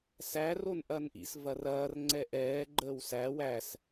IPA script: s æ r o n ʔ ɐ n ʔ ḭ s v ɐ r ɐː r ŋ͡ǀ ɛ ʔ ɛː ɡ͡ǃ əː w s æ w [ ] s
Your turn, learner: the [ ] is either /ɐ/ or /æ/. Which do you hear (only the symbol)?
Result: æ